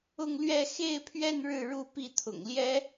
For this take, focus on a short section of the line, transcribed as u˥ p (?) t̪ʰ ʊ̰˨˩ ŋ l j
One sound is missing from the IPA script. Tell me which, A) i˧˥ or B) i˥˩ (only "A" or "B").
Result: B